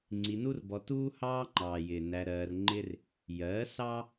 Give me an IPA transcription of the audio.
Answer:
ŋ͡ǀ i˧ n u˦ r b ɔ˧ t uː˦ h ɑː˦ ŋ͡ǃ ɑː˨ j ɪː˨ n æ˧ ɾ ɜː˧ r ŋ͡ǃ ɪ˦ r | j ɜ˨˦ s ɑ˦

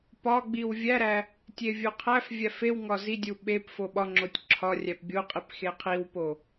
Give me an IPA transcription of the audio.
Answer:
p ɒ ɡ͡b i w vʲ æ ɾ æ | tʲ e vʲ o qʰ æ f vʲ æ f e w ŋ ɒ z i dʲ u ɓ e p f o ɓ ɒ ŋ͡ǁ o tʲ ǁʰ ɒ rʲ æ p bʲ o qʼ i p x e qʰ i w p o

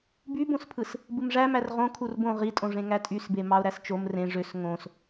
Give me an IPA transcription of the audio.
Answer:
b y b õ s pʰ ɯ s | b ɯ m ʐ æ m æ r ʁ õ kʰ u r b õ ʁ i tʼ õ ʐ ẽ ŋ æ tʼ y s b e m ɑ ʊ̯ ɾ æ s t͡ʃ o m r ẽ ʐ ø s ŋ õ s

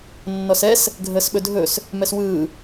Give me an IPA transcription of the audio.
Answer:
nː ɔ s ɛ s | ɡʱ əː s ɓ ɵ dʱ ɵ s | m ɛ s w ɯː

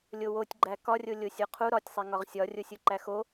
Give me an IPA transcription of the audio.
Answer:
lʲ o w o tʲ ɡ͡ǃ æ k ɒ rʲ o lʲ o sʲ o qʰ u ɾ ɒ tʲ sˤ e ŋ ɒ ʁ sʲ ɒ rʲ o sʲ u ǃ æ x o

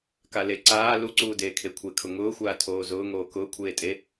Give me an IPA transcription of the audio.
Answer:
k a l e ǀ aː l u ǀ uː d eː kʰ e kʷʰ e kʰ ʊ ŋ ʊː xʷ aː tʰ oː z ʊː ŋ oː k ʊː kʷʰ eː tʼ e

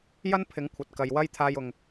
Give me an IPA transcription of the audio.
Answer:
j ɐ˥ n pʰ ɪ˨˥ ŋ kʷʰ ɐ˨ t̚ k ɐ˨ j w ɐ˥ j t̪ʰ aː˧ j ʊ˨ ŋ

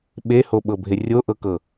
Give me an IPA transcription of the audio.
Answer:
ɓ e h o ɓ ɤ bʱ e rʲ o ʔ ɤ k ɤ

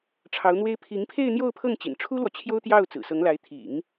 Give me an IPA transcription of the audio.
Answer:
ʈ͡ʂʰ ɑ˧˥ ʊ̯ n̪ w e˥ ɪ̯ pʰ i˧˥ ŋ pʰ e˥˧ ɪ̯ n̪ j o˥˧ ʊ̯ pʰ ɤ˥˩ ŋ t͡ɕ ḭ˨˩ n ʈ͡ʂʰ u˥ l w ɔ˨ t͡ɕʰ j o˥ ʊ̯ t̪ j ɑ˥˩ ʊ̯ t͡s ɹ̩˨˩ s ɤ˧˥ ŋ l a˧˥ ɪ̯ t̪ʰ ḭ˨˩˦ ŋ

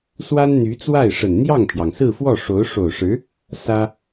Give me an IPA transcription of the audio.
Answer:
s w a˥ n n̪ y˧˥ t͡s w a˥˩ ɪ̯ ʂ ə˨˩ n n̪ j ɑ˥˩ ŋ pʰ j ɑ˩ ŋ s ɹ̩˥˧ f w ɔ˥˩ ʂ o˧˥ ʊ̯ ʂ o˨˩ ʊ̯ ʂ ɻ̩˧˥ | s ä˥

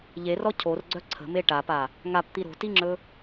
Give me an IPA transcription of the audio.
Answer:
ʎ e r ɔ cʰ o r ɡ͡ǀ œ ǀʰ ə̤ m e ʈ a p a | ŋ a p t̪ i ɾ o̤ t i ŋ͡ǁ ɵ

